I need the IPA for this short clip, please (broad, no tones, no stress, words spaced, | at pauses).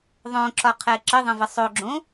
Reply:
ðˤõǁɒqʰɛ ǁəðˤə̃və sˤoɡ͡ǁõ